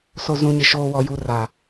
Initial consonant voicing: voiceless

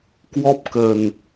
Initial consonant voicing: voiceless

